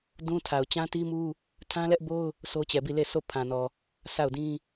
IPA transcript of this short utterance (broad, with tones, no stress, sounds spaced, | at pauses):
d ũ˦ tʰ a˨ ʊ̯ t͡ɕ ã˦ t i˦ m u˦ | tʰ ã˦ l ɛ˦ ʔ b o˦ ʊ̯ | sʰ o˦ t͡ɕ ɛ˨ b i˦˨ l e˦˨ s o˦˨ pʰ ã˨ n ɔ˨ | sʰ a˦˨ ʊ̯ d ĩ˦